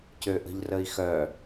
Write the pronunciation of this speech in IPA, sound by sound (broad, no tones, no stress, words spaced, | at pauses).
cøʔə̤ʎrəi̯xœ